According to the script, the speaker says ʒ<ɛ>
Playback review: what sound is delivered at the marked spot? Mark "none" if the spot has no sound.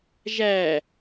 æ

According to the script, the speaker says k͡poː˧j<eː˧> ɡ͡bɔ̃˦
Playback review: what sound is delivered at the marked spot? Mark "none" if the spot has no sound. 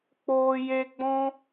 e˧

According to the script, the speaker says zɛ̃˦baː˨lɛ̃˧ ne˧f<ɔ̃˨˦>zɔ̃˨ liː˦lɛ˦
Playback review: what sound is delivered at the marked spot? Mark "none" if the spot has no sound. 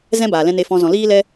ɔ̃˧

